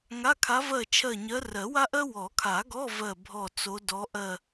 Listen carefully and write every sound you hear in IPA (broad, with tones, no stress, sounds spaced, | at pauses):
ŋ a˧˥˧ kʰ a˧˥ v ɜ˦˨ t͡ʃʰ ɜ˦˨ ɲ ɜ˧˥ r ɜ˨˩˦ w a˥ ʔ ɜ˥ w ɔ˨˩˦ kʰ a˨˩˦ ɡ ɔ˧˥˧ v ɜ˦˨ bʱ ɔ˦˨ t͡s o˧˥ d ɔ˧˥ ʔ ɜ˦˨